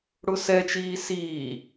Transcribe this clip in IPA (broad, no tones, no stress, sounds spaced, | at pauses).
ɽ ʊ s ɛ t͡ʃ iː s iː